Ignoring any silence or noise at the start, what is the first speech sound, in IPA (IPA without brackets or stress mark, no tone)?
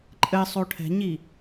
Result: ǃʼ